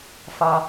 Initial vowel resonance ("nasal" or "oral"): oral